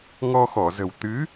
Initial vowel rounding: rounded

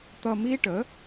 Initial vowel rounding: unrounded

